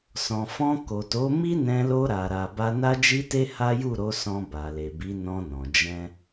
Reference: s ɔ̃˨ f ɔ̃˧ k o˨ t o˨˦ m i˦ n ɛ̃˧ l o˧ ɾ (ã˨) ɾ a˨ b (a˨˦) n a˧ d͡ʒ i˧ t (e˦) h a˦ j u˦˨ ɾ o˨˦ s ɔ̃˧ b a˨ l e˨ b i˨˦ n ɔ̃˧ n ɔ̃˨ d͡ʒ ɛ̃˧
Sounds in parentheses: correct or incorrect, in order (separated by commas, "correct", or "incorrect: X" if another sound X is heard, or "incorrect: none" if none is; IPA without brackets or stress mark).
incorrect: a˨, incorrect: a˧, incorrect: e˧